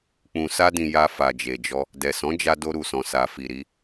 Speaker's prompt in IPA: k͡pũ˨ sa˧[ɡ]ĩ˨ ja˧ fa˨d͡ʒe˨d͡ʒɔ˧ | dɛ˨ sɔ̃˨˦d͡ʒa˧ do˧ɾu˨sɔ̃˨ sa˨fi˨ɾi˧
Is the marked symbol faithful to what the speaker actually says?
no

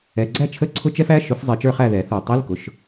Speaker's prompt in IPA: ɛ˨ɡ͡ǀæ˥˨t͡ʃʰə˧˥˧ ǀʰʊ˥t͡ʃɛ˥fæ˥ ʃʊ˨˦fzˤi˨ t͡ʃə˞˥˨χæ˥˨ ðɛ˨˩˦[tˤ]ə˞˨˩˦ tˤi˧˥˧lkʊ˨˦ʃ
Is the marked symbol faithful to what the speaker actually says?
no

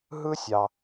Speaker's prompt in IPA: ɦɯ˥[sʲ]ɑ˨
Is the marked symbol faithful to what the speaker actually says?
yes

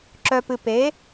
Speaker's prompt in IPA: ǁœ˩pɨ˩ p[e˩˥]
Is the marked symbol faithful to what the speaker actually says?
yes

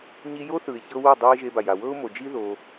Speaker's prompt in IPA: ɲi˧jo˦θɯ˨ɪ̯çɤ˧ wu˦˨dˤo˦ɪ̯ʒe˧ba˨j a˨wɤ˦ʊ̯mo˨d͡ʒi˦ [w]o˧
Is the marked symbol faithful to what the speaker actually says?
no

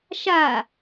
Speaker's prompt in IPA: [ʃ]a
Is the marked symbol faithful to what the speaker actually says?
yes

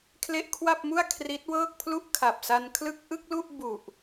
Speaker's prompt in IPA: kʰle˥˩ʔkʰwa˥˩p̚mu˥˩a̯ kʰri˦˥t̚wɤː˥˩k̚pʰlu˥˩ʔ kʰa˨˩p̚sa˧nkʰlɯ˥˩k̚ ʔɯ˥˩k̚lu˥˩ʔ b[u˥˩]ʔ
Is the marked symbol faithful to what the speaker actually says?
no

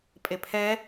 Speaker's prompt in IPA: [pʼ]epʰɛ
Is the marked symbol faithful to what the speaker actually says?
yes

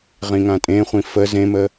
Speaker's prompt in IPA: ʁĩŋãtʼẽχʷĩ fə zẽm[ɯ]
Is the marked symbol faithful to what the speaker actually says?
no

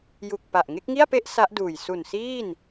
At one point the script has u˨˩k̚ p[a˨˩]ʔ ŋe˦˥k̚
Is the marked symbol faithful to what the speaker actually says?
yes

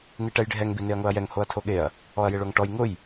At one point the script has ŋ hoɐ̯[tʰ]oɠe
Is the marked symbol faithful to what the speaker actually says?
yes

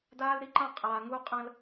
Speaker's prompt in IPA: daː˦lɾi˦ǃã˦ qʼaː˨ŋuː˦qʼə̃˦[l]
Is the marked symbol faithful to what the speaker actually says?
yes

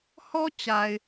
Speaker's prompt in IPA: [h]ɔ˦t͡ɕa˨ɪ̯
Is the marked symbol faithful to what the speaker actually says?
yes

